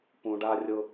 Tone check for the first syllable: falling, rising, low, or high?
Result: low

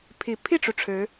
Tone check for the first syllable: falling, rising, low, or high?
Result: low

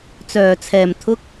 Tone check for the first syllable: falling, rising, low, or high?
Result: low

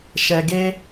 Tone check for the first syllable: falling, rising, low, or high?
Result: low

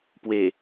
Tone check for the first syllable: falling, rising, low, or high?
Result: low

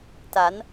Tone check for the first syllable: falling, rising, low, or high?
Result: rising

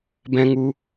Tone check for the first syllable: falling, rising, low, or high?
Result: high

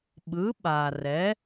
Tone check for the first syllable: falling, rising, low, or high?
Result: rising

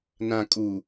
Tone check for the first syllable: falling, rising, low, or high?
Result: low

